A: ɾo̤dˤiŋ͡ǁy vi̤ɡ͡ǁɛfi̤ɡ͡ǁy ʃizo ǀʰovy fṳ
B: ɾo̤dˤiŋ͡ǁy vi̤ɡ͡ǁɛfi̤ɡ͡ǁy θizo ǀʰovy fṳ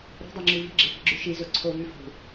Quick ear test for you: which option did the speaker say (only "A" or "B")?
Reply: A